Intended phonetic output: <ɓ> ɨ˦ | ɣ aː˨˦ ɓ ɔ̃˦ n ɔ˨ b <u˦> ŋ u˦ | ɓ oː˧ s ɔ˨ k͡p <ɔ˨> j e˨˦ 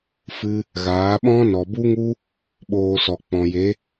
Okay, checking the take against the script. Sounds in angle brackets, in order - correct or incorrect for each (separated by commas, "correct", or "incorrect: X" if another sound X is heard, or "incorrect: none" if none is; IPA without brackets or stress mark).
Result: incorrect: f, correct, incorrect: ɔ̃˨